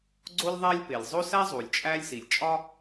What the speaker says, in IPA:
ɡ͡ǀo˥lʲðˤæ˥lʲpe˩lʲ zˤo˥sæ˥ zˤu˩lʲt͡ʃʼæ˥lʲsi˩lʲ t͡ʃʼɒ˥

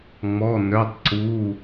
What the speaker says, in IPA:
ŋ͡mɔ˩˧˩nœ˩˧˩tˤǀu˩˧˩

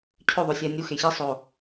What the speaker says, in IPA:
cʰøðˤø sʲænʲuxe çisˤo

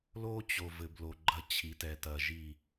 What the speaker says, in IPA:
lo˦t͡ɕo˨ vɘ˨blo˨ɡ͡ǃɐ˦ t͡ɕʰi˨˦tɛ˨tɐ˨ʒi˦˨

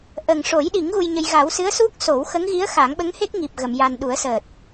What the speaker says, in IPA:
ʔə˨˩ŋʂo˨˩˦jɗi˨˩˦ŋ ɣu˧jɲə˧j ɣa˨˩˦wsɨ˧˥ə̯ su˦˥k̚so˨˩˦w xə˧˥ŋɣi˧˥ə̯xa˨˩˦ŋɓə˧˥ŋ he˦˥k̚ŋi˨˩p̚ ɣə˨˩˨mja˨˩nɗu˨˩˦ə̯səː˨˩t̚

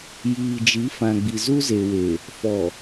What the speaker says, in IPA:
jiː˨d͡ʒi˨˦fã˨ ɡ͡bi˨zu˦ze˨we˨ | fɔ˨

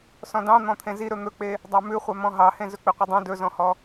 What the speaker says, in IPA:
sɔ̃dɑ̃ n̪ɔ̃t̪ʰẽzi ɾɵn̪ɵk͡pe | dˤɑmʉχʷœ mɔ̃ɦɑhẽ zɵk͡piqʷidˤĩ dɵzɔ̃hɔ

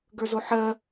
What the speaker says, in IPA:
ɡə˞zoħɜ

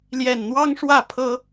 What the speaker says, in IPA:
ljɛ˨˩nn̪wɑ˦ŋ ʂwä˥˨pʰɤ˦

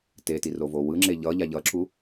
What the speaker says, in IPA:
tetirovo wɯŋ͡ǁe ʎʌʎa ʎʌǁu

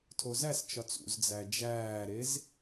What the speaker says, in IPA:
tʰozæst͡ʃɒt͡s ṵzd͡zæ d͡ʒæːɾez

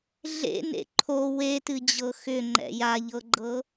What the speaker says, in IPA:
ɮḛnḛ ǃʰo wetɨd͡ʑɤ xʏŋ͡ǃɛ̰ jaʎɤɡ͡ǃɤ

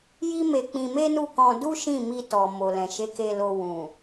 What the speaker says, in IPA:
ji˦me˧k͡pĩ˧ me˦nu˦˨kɔ̃˧ du˦ʃĩ˦˨ mi˧tɔ˨ mo˨lɛ̃˨ ʃe˨˦ke˧lo˧ wũ˨

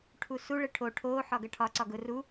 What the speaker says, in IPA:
ʈʰusu ɭɘʈʰo ʈʰoː ħɒɡɐʈʰɒ ǀɒɡʊ ru

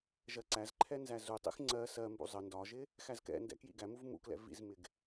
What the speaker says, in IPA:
ʒɜǀæzǃʰɛ nzæzutˤḭx ŋ͡ǀɜ sɜmbṵ zˤə ndɒʒɪ | xæzkɛ̰ndɛ̰ kjḭɡæmuv mṵklɛ̰ vḭzmɪɡ

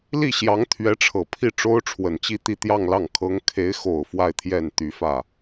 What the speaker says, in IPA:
li˥˩ɕjɑ˧˥ŋ t̪ʰɥɛ˧˥ʈ͡ʂʰɤ˨˩pʰi˥˩ ʈ͡ʂo˥ʊ̯ʈ͡ʂʰwə˨˩nt͡ɕi˥˧ t̪i˥˧t̪jɑ˥˧ŋlɑ˥˩ŋ kʰɤ˧˥ŋkʰe˧˥ɪ̯xo˨˩ʊ̯ fwa˥˧ɪ̯t̪ʰjɛ˥˩n t̪y˧˥fä˥˩

